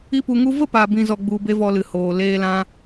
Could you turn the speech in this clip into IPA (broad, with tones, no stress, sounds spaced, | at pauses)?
i˦ p u˧ ŋ u˦ v ə˦ p a˨ b ĩ˨ z ɔ˧ ɡ͡b u˧ b e˦ v ɔ˧ l ɨ˨ h oː˨ l eː˦ l ã˦